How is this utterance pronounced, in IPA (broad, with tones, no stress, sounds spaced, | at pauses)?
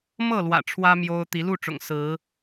m ɤ˥˨ l w ä̰˨˩ ʈ͡ʂʰ w ä˦ m j o˦ ʊ̯ t̪ i˨˦ l u˥˨ ʈ͡ʂ ʊ̰˨˩ ŋ s ɹ̩˨˦